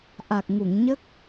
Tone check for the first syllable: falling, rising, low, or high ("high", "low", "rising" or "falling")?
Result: low